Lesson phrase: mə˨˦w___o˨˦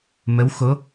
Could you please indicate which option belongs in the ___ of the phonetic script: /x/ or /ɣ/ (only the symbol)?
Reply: x